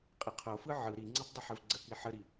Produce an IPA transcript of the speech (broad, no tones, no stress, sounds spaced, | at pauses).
qʼ ɪ qʰ o f ɯ ʕ ɯ ɾ i ŋ͡ǀ ɯ tˤ dˤ ɪ ħ ɘ v ɡ͡ǀ ə k i ħ ə ɾ i